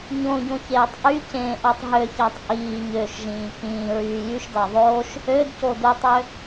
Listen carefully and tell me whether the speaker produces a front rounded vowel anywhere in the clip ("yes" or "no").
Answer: yes